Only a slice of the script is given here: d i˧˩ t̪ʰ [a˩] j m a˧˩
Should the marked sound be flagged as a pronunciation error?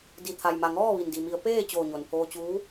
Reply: no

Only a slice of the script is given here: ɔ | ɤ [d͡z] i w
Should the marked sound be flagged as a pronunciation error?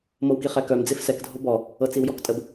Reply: yes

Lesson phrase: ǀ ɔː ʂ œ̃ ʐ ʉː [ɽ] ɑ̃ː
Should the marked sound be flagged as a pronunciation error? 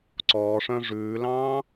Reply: yes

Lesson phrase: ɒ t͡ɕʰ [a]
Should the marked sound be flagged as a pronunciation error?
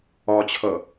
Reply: yes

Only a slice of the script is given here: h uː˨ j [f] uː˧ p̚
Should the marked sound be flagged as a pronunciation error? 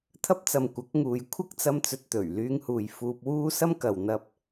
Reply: no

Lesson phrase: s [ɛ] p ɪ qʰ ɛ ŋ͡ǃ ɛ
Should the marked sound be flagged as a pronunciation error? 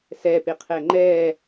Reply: no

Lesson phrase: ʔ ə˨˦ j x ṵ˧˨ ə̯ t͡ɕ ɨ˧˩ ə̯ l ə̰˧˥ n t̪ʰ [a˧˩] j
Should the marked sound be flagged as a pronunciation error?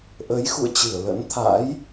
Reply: yes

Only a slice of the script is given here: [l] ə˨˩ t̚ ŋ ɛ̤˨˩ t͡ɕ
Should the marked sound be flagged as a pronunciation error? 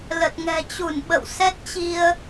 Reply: no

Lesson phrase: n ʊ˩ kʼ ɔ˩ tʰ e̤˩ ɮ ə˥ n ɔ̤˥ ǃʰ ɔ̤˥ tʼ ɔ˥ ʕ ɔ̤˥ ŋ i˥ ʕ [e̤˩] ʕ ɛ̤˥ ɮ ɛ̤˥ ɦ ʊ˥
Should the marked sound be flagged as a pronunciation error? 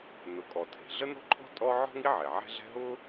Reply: yes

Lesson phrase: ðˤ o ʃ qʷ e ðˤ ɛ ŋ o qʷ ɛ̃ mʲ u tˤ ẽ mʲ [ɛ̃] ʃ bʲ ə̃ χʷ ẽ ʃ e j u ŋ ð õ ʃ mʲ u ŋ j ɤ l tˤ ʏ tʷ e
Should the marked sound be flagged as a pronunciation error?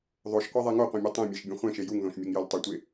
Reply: yes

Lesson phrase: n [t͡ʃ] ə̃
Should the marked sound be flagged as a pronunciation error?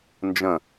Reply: yes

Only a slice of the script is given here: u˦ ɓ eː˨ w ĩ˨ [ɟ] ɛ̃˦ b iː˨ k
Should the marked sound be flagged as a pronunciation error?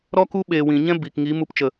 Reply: yes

